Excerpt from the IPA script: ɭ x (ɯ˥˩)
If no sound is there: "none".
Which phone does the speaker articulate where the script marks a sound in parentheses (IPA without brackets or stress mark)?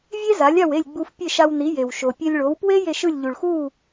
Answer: u˥˩